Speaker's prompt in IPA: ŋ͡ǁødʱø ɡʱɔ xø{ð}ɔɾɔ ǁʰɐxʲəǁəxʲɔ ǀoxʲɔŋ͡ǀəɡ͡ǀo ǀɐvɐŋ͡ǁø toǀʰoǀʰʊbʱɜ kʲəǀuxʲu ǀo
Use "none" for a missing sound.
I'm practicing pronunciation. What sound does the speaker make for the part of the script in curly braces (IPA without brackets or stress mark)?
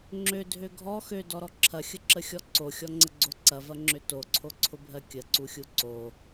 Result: d